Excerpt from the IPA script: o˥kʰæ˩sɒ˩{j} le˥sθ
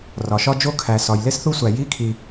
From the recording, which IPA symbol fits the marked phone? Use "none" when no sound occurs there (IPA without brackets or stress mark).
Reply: j